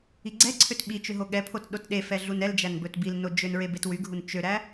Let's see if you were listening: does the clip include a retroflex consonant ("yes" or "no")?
no